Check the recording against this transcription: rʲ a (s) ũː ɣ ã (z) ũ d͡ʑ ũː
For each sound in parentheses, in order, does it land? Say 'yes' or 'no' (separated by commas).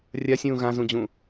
no, yes